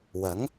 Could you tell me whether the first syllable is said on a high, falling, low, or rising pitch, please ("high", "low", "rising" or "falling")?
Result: rising